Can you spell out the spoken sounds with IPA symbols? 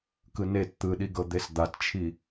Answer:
k ɯ n e t t̪ ɯ ɗ i ɡ ɤ d̪ e s d̪ a t t͡ʃʰ i

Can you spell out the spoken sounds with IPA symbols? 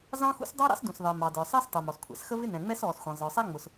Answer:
z ɑ̃˥ x ṵ˥ s dˤ ɑ˥ ɾ ɑ̰˥ s d ũ˩ s ðˤ ɪː˩ m ɑ˩ d ə˞˩ sˤ ɪː˥ s tˤ u˩ m ɔ˩ s kʷʰ ɛ̰˩ s x ə˥ v ɪ˥ n ɛ̃˩ ŋ͡m ɛ˥ s ɔː˩ s xʷ ɛ̃˩ zˤ ə˞˩ sˤ æ˥ ŋ͡m ʊ˩ s

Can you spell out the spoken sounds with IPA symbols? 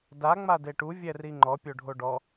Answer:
d a ŋ͡m a d e ʈ u vʲ ɛ r i ŋ͡ǃ ɔ pʲ o ɖʱ o ɖ ɔ

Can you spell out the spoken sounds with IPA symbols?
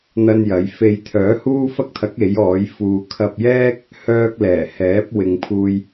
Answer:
n̪ ɐ˥ n j ɐ˨˥ j f e˧ j t̪ʰ œː˨˥ h uː˥ f ɐ˥ k̚ t̪ʰ ɐ˨˥ k̚ e˨˥ j ɔː˨˥ j f uː˧ kʰ ɐ˧ p̚ j ɛː˥ k̚ | h œː˥ k̚ l ɛː˨˩ h ɛː˨˥ p̚ w ɪ˨ ŋ pʰ uː˧ j

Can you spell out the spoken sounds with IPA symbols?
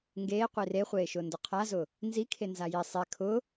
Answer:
ŋ ɡ eː qʷ i r e χʷ eː ʃ ʊː n d ʊ qʰ a z ʊː | n z i kʰ e n z a j i sˤ e kʰ ʊː

